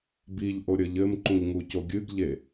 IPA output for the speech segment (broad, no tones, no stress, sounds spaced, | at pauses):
b i ʎ ʔ o ɾʲ ə ʎ ɘ m ǃ ũ ʎ ŋ u c o ɡʲ ɨ ɡ ʎ e